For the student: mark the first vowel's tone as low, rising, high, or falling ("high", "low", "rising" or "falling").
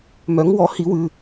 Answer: rising